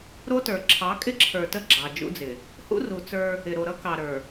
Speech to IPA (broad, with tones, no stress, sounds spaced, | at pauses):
ɾ o˦ t ə˞˨ ǁʰ ɑ˨˦ kʼ ɪ˦ ǁʰ ə˞˨ t ə˦˨ ɡ͡ǁ ɑ˨ d͡ʒ ṵ˦ d͡z ɪ˨ | h ṵ˦ r u˨ t͡s ə˞˦ | ɪ˨ ɾ o˨ ɾ ʌ˦ k ɑ˨ ɾ ə˞˨